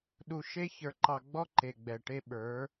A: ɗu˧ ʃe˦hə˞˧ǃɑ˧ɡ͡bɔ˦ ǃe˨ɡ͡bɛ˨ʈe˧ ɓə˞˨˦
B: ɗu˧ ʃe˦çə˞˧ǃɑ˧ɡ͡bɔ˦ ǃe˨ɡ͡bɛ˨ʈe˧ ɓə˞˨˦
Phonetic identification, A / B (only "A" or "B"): B